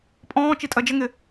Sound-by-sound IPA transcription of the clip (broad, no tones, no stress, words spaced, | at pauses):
pʼɔ̃ː t͡ʃitʼɜd͡ʒəŋɪ